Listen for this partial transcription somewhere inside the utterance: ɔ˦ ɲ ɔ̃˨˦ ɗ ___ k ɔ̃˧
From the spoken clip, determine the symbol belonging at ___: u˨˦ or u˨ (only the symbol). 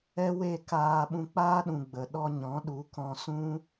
u˨˦